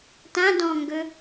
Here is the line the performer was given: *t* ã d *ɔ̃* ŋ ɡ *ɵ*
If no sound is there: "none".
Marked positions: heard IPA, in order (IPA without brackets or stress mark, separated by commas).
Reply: t, ɔ̃, ɵ